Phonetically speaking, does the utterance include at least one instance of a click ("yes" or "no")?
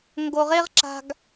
yes